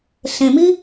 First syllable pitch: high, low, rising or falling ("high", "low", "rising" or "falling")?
low